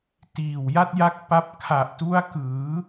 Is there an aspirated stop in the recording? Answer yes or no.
yes